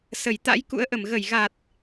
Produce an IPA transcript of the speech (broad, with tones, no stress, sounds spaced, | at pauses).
s ə˧˩ j t̪ a̰˧˥ j k ṵ˧˥ ə̯ ʔ ə˧˩ m ɣ ə˧˩ j ɣ a˨˩ t̚